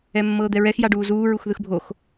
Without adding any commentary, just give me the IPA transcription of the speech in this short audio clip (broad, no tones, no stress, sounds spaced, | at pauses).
ɛ mː ɤː d̪ ɛ ɹ ɛ x j a ɖ uː z uː ɹ u x ð ɯ x bʱ o x